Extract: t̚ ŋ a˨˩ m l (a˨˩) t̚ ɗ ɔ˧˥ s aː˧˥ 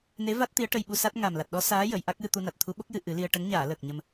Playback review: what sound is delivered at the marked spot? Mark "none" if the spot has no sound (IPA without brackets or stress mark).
a˨˩